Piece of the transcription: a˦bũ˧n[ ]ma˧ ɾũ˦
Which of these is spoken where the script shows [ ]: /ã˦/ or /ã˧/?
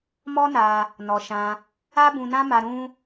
ã˦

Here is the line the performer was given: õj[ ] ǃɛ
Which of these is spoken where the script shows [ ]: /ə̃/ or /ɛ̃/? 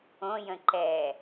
ə̃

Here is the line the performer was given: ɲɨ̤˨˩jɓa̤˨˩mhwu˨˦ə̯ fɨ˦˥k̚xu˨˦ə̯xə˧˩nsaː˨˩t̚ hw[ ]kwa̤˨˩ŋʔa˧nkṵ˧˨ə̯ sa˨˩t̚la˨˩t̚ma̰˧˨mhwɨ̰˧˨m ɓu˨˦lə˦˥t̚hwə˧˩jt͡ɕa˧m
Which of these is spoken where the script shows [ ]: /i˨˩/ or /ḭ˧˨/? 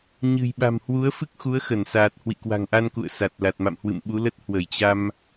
ḭ˧˨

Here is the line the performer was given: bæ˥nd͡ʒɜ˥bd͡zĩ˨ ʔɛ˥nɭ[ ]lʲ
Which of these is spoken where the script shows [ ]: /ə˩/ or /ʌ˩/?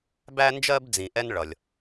ʌ˩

